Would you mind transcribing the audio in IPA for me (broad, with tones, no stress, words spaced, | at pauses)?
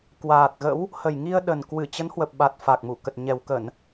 kwaː˨˩t̚ɣə̰˧˥w | hə˨˩jŋi˧ə̯ɗə˨˩nkwɨ˧˩ t͡ɕə˨˦nhwə˨˩p̚ ɓa˨˩t̚ fa˨˩k̚mu˧˩kə˨˩t̚ ɲɛ˨˩wkə˧˩˨n